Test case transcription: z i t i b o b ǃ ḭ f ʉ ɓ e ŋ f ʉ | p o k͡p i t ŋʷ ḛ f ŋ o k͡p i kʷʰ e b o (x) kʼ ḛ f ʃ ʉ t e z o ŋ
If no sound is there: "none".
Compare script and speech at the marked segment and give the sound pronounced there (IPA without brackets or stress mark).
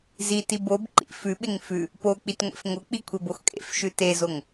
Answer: x